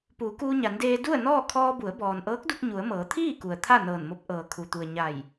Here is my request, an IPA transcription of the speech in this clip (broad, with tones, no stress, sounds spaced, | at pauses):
p uː˩˧ k uː˧ ɲ a˩˧ n d eː˧ d u˥˨ ə̯ n ɔː˥˨ kʰ ɔː˧ b u˩˧ ə̯ b ɔː˩ n ʔ ɤː˧˥ k̚ d u˧ k̚ ɲ u˩˧ ə̯ m ɤː˩˧ t̪ʰ iː˥˨ k u˩ ə̯ t̪ʰ a˥˨ n ɤː˧˩ n m o˧˥ p̚ ʔ ɤː˩ kʰ u˩ t̪ u˩ ə̯ ɲ a˧˩ j